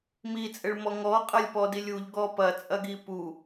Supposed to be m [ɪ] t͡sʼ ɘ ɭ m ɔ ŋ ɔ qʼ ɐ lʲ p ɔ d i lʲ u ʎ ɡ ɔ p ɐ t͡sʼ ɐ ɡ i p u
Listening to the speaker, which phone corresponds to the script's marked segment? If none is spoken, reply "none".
i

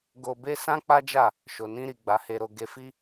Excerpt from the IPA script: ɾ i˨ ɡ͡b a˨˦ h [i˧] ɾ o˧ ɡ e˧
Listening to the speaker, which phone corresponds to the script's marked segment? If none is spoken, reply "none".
e˧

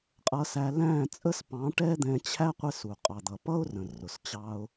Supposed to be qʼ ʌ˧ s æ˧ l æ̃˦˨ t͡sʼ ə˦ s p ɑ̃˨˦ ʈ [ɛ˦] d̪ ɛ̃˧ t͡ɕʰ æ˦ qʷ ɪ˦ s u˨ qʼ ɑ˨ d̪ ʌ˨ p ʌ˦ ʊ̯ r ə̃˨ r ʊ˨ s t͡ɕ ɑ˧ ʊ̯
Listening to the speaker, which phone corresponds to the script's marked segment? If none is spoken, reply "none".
ɛ˦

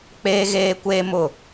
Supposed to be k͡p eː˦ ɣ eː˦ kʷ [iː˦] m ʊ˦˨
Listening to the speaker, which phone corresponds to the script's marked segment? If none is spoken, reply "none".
eː˦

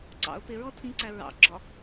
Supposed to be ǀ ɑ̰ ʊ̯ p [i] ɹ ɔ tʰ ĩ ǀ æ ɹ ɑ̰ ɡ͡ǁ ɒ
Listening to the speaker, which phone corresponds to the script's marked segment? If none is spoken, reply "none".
ɪ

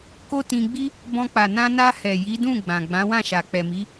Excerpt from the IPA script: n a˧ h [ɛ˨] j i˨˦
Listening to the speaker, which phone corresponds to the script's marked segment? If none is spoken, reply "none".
ɛ˨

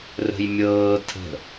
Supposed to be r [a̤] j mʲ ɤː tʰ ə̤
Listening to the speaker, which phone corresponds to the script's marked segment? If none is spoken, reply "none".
ə̤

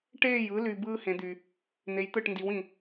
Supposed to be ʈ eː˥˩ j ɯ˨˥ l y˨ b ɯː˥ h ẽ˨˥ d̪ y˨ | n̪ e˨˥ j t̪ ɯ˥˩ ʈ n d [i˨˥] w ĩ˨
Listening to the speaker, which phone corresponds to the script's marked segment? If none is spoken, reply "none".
i˨˥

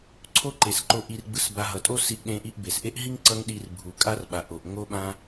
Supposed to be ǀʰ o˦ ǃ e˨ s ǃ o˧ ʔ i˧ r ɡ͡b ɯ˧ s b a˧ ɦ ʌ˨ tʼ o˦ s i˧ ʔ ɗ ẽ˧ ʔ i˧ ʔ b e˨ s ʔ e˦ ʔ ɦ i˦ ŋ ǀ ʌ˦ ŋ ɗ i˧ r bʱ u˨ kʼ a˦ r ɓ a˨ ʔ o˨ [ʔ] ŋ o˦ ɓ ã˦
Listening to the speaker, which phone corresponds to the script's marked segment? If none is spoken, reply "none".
ʔ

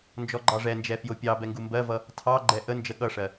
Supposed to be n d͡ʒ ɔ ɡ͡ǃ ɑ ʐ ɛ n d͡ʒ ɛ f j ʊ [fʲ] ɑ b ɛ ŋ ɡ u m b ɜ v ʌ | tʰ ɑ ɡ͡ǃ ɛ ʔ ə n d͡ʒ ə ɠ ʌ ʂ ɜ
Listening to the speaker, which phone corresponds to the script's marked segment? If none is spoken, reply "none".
pʲ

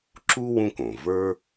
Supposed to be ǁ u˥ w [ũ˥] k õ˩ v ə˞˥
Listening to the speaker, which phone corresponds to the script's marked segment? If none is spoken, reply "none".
ũ˥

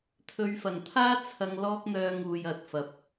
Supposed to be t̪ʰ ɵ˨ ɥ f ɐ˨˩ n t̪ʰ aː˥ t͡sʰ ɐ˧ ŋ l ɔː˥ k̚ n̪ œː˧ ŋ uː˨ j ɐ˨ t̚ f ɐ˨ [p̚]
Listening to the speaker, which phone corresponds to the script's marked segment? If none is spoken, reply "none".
p̚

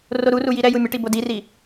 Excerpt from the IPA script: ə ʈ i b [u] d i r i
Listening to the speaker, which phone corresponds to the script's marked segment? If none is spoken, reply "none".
o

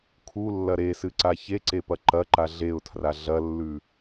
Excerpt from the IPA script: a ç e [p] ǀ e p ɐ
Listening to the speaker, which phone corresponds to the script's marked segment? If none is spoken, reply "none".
none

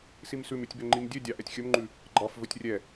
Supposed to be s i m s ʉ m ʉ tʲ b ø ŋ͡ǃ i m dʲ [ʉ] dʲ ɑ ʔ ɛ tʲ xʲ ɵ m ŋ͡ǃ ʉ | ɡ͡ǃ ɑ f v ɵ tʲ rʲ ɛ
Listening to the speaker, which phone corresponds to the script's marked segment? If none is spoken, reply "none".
ø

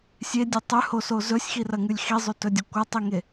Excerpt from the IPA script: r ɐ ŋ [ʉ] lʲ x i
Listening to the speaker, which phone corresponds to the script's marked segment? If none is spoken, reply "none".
ʉ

